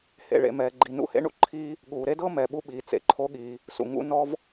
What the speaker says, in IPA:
h ḛ˩ ɭ ḛ˩ m ɛː˩ ɡ͡ǃ i˩ n ṵ˧ h ḛ˧ ɳ ṵ˩ ǃʰ iː˧ | ɠ uː˩ ɾ e˥ d ɤ˥ m ɛ˩ ɓ u˧ ɓ iː˩ t͡s ḛ˩ ǃʰ o˧ ɠ iː˩ | s ṵ˩ ŋ ṵ˧ n ɔ˧ v

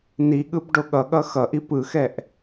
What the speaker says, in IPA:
n i ɠ ɯ b ɖ o ɠ ʌ ɠ ʌ x ʌ ʔ i p ɯ x ɛ ʔ

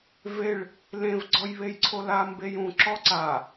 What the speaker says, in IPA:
v e ɭ | l ẽ v ɡ͡ǀ ɔ j β e j ǀʰ o l a m b e j ũ ǁ ɔ ǀ a

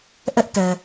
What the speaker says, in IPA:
ʔ ɛ˦ ʔ t ɛ˨

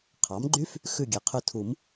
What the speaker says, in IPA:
qʰ ɑ˩˥ m ɡ͡ǃ y˦˥ f | x ʉ˦˨ ɡʲ e˩˥ qʰ ʉ˦˨ tʰ u˨˩˦ m

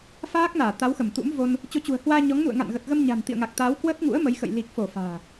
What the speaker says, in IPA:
f aː˦˥ k̚ n aː˧˩ t̪ a˨˦ w x ə˧˩ m t̪ ṵ˧˥ m v o˧ n | t͡ɕ o˨˦ t͡ɕ ṳ˨˩ ə̯ h w aː˧ ɲ ɔ˨˦ ŋ n ṵ˧˨ ə̯ ŋ a̰˧˨ n ɣ ə˨˩ t̚ ɣ ə˧ m ɲ a̤˨˩ n t̪ ḭ˧˨ ə̯ ŋ a˨˩ k̚ t̪ aː˨˦ w k w əː˦˥ t̚ ŋ ṵ˧˥ ə̯ m ə˨˦ j x ə̰˧˨ j l i˨˩ k̚ f o˧˩ f a̤ː˨˩

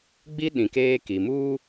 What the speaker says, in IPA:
ɡ͡b i˦ ɗ ĩ˨ k eː˦ k i˨ m uː˦

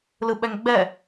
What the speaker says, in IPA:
l ɯ ɓ ɛ ŋ ɡ͡b ɛ

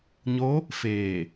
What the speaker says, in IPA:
ɲ o˧˥ | f eː˧˩

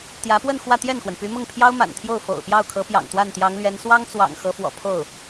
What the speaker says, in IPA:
t̪ j ä˧˥ p w ə˥˧ n x w ä˥˧ t̪ j ɛ˥˩ n x w ə˩ n p y˧˥ m ʊ˥˩ ŋ pʰ j ɑ˥ ʊ̯ m a̰˨˩ n t̪ʰ j o˥˩ ʊ̯ f o̰˨˩ ʊ̯ p j ɑ˥˩ ʊ̯ kʰ ɤ˧˥ p j ɑ̰˨˩ ŋ t̪ w a˥˩ n t̪ j ɑ˧˥ ŋ l ɥ ɛ˧˥ n s w ɑ˥ ŋ t͡s w ɑ̰˨˩ ŋ x ɤ˧˥ f w ɔ̰˨˩ pʰ o˥˩ ʊ̯

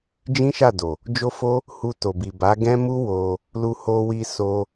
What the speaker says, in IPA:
d͡ʒ ĩ˦ ʃ a˦˨ d o˨ | d͡ʒ o˦ f o˦ | h u˧ t o˨ b i˨ b a˨˦ ɡ ɛ̃˦ m u˦ w o˧ | l u˧ h o˧ w i˧ s o˧

